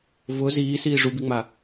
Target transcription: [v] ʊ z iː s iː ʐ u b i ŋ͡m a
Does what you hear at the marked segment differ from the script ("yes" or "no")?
no